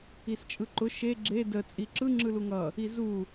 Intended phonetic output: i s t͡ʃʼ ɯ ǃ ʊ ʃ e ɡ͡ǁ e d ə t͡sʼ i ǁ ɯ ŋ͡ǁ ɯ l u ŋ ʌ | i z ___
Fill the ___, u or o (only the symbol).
u